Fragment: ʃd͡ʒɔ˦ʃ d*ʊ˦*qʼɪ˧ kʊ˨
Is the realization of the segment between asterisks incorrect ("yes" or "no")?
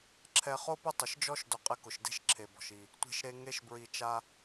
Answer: yes